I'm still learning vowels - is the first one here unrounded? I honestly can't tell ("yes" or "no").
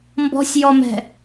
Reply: no